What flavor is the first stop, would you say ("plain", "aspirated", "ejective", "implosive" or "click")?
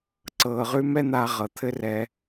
click